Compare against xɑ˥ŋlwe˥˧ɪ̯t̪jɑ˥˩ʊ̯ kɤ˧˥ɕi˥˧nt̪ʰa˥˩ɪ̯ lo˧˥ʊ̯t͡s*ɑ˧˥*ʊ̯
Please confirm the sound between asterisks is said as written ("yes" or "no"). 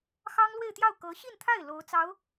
yes